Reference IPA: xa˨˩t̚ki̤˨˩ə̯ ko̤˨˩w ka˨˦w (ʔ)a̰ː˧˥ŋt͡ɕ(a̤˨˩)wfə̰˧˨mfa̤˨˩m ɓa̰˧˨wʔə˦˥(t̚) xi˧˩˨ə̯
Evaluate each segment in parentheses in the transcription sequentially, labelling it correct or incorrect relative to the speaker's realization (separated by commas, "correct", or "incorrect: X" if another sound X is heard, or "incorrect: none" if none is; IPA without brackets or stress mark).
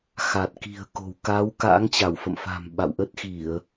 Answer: incorrect: k, incorrect: a˧˩, correct